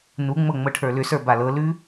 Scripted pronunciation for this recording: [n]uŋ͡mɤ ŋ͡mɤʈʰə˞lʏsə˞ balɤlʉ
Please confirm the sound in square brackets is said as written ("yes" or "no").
yes